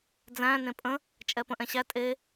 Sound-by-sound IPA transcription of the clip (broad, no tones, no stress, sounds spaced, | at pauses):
d͡z æ̃ n ẽ pʼ ə̃ | t͡ʃʼ ɛ p ə̃ ʔ ɛ̃ ɕ æ tʼ e